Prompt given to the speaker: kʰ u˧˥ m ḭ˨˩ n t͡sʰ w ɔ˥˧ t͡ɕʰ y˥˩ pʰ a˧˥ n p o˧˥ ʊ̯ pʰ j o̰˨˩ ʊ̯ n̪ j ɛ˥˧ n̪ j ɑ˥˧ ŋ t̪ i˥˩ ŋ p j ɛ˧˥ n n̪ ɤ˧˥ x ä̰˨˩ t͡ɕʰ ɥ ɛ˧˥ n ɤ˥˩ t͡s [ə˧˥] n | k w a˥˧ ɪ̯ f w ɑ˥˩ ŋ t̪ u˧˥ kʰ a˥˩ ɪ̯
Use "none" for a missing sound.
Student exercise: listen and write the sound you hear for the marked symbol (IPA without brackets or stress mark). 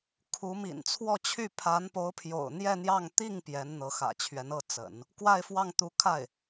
ə̰˨˩˦